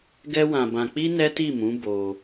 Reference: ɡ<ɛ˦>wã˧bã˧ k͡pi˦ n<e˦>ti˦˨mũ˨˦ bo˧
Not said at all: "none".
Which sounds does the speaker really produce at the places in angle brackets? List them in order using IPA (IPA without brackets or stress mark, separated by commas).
ɛ˦, ɛ˦